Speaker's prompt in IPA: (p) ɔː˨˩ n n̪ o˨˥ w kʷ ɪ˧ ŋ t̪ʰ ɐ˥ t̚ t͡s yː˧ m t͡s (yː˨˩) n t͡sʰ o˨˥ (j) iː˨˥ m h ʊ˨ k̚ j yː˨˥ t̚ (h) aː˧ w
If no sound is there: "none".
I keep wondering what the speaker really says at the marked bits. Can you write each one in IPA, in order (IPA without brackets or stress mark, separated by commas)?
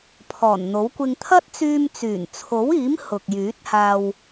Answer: pʰ, yː˨˩, w, h